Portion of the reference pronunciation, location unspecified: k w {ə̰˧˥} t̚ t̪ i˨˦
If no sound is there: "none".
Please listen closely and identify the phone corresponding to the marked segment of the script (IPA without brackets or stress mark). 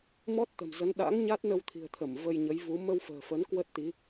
ə˦˥